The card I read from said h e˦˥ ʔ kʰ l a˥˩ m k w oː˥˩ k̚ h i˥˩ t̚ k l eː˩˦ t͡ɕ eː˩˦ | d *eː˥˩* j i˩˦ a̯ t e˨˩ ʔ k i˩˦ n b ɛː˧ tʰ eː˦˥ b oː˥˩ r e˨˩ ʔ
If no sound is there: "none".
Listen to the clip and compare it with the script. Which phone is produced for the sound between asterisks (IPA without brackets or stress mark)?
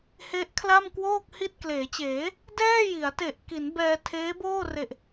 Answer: ɛː˥˩